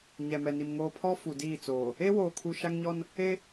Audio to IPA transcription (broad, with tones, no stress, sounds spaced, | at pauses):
ɲ ɛ˨ m ɛ˨ n i˨ m ŋ oː˨ pʰ ɔ˦ f u˨ d iː˦˨ t͡s oː˨ | e˦ w oː˨ kʰ u˨ ʃ a˦ ŋ ɲ ɔ˦ n | e˦